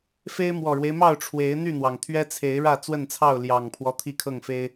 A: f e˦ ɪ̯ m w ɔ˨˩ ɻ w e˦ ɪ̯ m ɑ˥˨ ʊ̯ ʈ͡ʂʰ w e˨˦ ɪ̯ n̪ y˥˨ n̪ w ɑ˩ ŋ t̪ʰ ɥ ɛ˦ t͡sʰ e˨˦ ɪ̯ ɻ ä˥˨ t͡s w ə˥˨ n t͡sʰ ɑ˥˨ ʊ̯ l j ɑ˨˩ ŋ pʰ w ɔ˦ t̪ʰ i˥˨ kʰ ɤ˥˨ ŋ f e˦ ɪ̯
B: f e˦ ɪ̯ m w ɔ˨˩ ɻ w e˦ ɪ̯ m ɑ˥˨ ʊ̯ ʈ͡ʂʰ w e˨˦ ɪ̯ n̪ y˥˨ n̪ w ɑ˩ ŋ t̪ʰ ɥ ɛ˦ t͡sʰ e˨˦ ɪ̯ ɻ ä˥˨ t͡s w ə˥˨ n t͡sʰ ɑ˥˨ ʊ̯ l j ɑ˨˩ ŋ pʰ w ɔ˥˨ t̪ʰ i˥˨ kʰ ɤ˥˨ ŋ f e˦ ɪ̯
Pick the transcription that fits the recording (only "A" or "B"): A